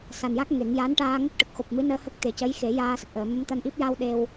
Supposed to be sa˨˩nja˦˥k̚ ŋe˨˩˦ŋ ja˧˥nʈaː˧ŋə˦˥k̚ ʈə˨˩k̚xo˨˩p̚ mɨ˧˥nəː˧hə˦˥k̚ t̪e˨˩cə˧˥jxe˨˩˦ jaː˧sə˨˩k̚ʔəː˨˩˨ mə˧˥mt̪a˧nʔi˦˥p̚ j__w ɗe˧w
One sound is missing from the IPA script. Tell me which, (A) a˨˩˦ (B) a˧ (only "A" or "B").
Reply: B